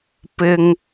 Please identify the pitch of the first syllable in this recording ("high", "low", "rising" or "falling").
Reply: high